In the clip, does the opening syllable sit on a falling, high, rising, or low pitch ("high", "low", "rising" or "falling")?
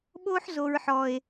high